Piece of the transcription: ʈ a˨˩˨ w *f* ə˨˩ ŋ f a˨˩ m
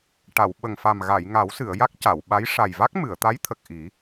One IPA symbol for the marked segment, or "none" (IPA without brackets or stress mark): ɓ